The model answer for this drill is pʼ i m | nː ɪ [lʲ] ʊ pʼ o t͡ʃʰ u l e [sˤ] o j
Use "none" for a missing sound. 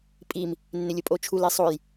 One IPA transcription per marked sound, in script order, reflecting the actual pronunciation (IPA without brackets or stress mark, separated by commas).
lʲ, sˤ